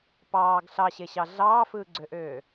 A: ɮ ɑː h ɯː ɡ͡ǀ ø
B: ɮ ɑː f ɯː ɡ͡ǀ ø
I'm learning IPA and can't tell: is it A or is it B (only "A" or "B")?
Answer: B